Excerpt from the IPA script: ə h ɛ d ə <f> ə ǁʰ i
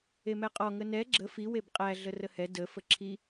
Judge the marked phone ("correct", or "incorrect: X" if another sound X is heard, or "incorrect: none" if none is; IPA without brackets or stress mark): correct